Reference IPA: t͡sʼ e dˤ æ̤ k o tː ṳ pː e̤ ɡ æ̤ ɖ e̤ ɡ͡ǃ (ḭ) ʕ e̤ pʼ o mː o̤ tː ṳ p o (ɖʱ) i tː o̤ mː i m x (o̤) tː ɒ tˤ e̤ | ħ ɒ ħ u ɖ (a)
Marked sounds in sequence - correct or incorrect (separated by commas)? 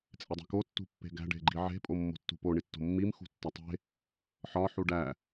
incorrect, incorrect, incorrect, incorrect